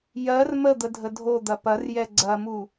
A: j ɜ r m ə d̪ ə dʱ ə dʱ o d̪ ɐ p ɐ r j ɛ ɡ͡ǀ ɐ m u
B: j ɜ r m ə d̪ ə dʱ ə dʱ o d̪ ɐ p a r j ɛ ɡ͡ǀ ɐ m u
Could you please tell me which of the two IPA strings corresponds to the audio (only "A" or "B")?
A